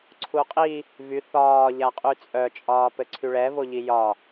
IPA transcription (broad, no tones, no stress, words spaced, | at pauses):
ǀʰuqʼi | vy θɒː ʎaqʼyt͡sʼœ t͡ʃʼɒːpɘǀʰyɭɛ voʎijɒ